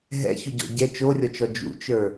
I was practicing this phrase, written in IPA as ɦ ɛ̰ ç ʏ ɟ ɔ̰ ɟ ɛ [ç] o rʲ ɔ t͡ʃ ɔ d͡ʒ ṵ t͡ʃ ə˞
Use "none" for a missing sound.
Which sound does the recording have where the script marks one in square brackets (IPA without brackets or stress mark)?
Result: t͡ʃ